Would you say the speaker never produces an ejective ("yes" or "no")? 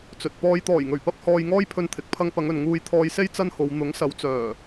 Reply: yes